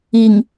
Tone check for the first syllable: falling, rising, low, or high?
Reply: low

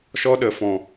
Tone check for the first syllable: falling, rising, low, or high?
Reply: high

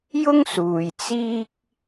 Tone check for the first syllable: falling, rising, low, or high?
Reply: high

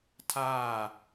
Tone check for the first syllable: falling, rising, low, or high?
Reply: falling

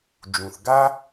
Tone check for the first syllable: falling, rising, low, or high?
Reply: low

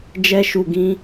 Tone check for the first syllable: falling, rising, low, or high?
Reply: high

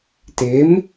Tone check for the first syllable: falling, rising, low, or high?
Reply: rising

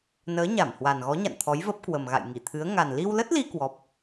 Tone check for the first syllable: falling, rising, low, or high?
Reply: rising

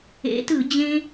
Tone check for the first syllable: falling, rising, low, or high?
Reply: rising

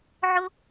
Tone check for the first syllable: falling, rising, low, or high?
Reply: high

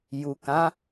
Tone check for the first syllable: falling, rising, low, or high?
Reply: low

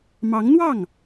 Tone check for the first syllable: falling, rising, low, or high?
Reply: rising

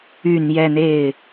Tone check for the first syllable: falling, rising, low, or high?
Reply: low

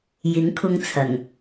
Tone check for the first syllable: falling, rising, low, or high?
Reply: rising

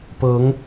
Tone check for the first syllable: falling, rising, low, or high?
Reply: rising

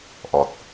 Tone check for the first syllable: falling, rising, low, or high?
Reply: low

